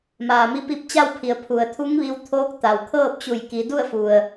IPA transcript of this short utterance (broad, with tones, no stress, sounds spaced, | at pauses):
m aː˩ m i˧ p i˧˥ p̚ t͡ɕ a˥˨ w pʰ i˩ ə̯ pʰ u˩ ə̯ t̪ʰ u˧˥ ŋ ʋ i˧ w t̪ʰ oː˧˥ k̚ t̪ a˩ w kʰ ɤː˥˨ p̚ t͡ɕ u˧˩ j k i˩˧ d u˥˨ ə̯ f u˩ ə̯